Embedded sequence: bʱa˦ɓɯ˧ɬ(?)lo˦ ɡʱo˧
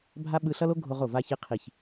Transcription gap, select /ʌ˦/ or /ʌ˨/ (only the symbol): ʌ˦